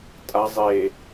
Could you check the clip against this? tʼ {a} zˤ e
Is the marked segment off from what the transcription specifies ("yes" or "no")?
no